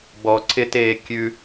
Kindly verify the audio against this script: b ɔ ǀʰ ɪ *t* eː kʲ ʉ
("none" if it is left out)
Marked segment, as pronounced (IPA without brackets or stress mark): t